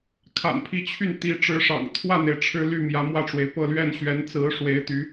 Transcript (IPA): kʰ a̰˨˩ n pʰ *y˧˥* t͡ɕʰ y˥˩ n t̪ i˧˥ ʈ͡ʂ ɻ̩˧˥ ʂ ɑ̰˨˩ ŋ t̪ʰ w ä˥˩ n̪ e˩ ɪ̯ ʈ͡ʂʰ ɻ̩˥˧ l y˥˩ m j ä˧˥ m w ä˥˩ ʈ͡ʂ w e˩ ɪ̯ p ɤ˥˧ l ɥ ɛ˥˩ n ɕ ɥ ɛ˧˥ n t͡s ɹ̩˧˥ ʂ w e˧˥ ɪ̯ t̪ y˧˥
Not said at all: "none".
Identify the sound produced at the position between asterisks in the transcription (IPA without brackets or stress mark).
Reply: i˧˥